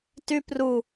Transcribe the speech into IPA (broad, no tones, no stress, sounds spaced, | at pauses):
t y p r u